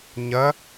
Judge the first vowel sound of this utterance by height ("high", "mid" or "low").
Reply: low